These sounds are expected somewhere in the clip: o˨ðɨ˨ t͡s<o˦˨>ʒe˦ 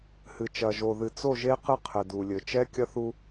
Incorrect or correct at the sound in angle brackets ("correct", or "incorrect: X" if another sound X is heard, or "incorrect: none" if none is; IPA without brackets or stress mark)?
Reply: correct